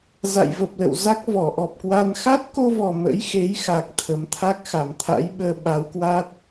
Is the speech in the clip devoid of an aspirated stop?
no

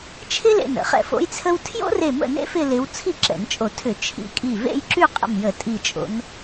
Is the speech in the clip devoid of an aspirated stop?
no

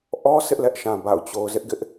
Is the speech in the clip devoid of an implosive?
yes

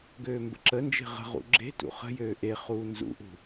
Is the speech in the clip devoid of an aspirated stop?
yes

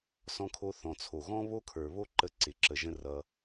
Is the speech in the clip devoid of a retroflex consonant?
yes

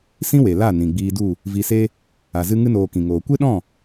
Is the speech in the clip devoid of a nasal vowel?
no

